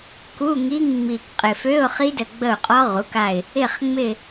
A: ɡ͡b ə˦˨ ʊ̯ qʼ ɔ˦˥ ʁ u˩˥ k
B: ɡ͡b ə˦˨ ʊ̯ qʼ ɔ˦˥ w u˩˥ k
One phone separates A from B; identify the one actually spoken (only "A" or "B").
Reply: A